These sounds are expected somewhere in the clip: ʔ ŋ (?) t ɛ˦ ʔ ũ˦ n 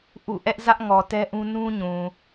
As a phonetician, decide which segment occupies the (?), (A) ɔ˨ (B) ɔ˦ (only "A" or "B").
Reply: A